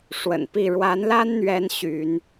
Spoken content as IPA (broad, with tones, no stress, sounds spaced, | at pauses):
ʂ w ə̰˨˩ n p i˥˨ ɻ w a˨˦ n l a˦ n n̪ ɥ ɛ˨˦ n ɕ y˨˦ n